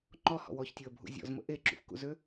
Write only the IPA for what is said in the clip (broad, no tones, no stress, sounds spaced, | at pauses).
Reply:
ŋ͡ǃ ɔ h ɔ̰ w ɔ ç tʲ o ə̯ bʱ ṵ zʲ ɔ̰ z m ə̰ ʔ e ǁ ṵ f k ṵ z ø